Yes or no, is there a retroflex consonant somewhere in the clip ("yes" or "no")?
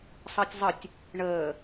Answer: yes